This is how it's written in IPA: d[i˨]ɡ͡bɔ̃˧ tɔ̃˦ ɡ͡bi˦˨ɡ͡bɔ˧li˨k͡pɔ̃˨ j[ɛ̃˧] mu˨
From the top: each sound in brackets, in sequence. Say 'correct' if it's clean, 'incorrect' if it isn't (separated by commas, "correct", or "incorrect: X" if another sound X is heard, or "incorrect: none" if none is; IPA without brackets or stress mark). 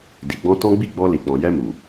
correct, incorrect: ɛ˧